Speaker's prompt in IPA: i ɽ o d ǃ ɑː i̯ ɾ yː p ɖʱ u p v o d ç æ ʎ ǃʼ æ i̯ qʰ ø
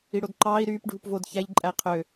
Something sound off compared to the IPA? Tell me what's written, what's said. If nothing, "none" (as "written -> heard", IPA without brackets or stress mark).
none